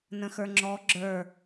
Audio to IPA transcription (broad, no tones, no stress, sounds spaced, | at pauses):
n ə̃ x ə˞ ŋ͡ǁ ɔ ɡ͡ǁ ə˞